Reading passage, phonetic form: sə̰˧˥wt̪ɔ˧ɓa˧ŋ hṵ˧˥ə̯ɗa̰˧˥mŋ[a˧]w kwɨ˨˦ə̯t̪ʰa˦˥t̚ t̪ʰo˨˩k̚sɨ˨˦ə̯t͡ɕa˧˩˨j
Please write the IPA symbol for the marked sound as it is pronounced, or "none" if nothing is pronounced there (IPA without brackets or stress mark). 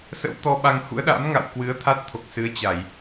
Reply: a̰˧˨